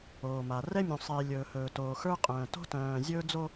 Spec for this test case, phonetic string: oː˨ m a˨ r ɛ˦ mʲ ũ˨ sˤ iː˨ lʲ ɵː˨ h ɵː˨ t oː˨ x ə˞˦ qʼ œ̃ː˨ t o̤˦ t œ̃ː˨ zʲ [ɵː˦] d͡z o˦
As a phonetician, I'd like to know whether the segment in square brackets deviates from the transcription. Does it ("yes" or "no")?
no